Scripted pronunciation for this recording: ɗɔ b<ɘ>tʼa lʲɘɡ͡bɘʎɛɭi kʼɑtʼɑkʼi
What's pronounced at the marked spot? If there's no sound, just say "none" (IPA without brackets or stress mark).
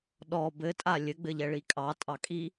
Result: ɘ